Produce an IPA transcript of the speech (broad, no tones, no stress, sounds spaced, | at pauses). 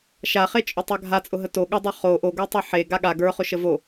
ʃ a χ e t͡ʃʼ ʊ tˤ a ɡʱ a t͡sʼ ʊ ɦ ə t o ɠ ʊ dˤ ə˞ χ o ʔ o ɡ ə˞ tˤ e ħ e ɡ a ɠ a ɡ ə˞ χ ʊ ʃ ə v o